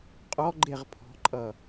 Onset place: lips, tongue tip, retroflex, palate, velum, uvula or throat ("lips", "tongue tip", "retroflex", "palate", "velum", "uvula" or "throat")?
uvula